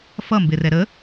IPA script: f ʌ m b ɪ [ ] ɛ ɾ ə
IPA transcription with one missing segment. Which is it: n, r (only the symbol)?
r